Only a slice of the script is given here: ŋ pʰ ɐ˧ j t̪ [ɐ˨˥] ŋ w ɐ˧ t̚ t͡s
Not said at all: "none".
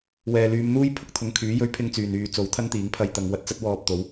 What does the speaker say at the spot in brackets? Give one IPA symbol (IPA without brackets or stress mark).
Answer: ɐ˨˧